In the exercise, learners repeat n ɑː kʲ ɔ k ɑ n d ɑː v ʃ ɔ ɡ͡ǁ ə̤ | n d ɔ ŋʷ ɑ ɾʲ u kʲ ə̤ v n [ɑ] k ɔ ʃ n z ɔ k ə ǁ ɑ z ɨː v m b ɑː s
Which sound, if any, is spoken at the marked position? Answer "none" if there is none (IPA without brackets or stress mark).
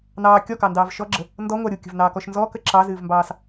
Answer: ɑː